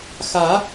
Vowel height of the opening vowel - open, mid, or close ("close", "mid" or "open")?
open